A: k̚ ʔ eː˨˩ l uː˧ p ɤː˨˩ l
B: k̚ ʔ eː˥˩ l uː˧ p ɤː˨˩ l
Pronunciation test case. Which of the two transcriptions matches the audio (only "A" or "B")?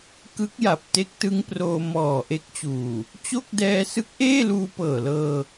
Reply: B